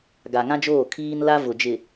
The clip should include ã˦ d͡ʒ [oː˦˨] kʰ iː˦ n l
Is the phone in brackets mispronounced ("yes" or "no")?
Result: no